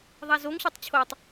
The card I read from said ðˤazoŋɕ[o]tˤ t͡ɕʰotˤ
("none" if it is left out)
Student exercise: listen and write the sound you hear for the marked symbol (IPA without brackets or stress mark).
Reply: o